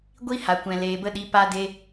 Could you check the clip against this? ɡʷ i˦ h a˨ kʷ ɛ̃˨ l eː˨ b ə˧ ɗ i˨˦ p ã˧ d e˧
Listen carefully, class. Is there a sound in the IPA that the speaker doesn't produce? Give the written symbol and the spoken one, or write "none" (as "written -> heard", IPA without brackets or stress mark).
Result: ã˧ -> a˧